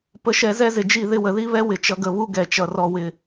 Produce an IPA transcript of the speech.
p ə˨ ʃ ɛ˨ z ɛ˦ z ɪ˨ d͡ʒ i˦˨ ð ɪ˧ w ə˨ ð i˦ β ɛ˦ w ɪ˨ t͡ʃ ʌ˨ ɡ ə˨ β u˧ ɡ ɛ˨ t͡ʃ ʌ˨ r ɔ˨ w ɪ˨

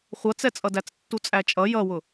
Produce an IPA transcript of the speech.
χʷ ʌ t͡s ɛ t͡sʼ ʌ d æ t͡s tː u t͡sʼ æ t͡ʃʼ ʌ j ʌ w ʊ

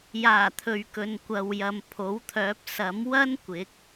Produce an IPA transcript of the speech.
j aː˨˩ t̪ʰ ɵ˨ ɥ k ɵ˨ n kʷ ɐ˨ w j ɐ˨ m pʰ o˨˥ w t̪ʰ œː˨˥ p̚ s ɐ˨˥ m w ɐ˥ n kʷ ɪ˨˥ k̚

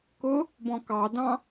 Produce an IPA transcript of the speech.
k ʊ | b ɔ̃ k ɑ d ɑ̃

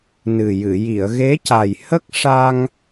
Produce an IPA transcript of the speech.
n ɨ˨˩ j ɨ˨˩˨ j i˨˩˨ ə̯ ɣ e˧˥ c a˨˩ j h ə˦˥ k̚ ʂ a˧ ŋ

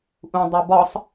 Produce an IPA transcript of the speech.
ʔ ũ dˤ o b ɒ sˤ

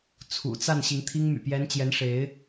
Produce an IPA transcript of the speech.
t͡sʰ ṵ˨˩ t͡s a˥˨ n ɕ i˨˦ ŋ t̪ʰ i˦ ŋ m y̰˨˩ p j ɛ˨˦ n t͡ɕ j ɛ˨˦ n ʂ e˨˦ ɪ̯

